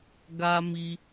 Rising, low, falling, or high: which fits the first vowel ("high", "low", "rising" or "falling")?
high